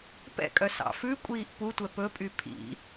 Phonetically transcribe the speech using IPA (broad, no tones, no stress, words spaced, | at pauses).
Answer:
pɛ̰kʼœ sɑ̰fʉkʷʼiːʔ putʷɛ pɵpʼy pʰḭ